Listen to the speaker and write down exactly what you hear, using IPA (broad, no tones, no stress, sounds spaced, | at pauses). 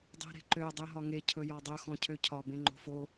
dˤ e̤ ɾ e̤ ǃ ø dˤ ø ɦ ɒ ŋ e cʰ ɵ j ɔ dˤ ɵ x ɔ̃ cʰ ø cʰ ɒ b ẽ ŋ͡ǃ o̤ f o